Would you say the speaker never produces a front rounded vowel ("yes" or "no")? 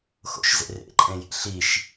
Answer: yes